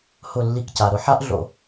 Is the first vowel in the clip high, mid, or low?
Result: high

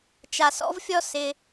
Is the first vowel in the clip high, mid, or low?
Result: low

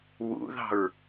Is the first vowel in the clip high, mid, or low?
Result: high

